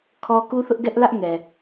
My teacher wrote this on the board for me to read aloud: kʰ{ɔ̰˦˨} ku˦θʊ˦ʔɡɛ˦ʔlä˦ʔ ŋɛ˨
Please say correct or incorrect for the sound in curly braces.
incorrect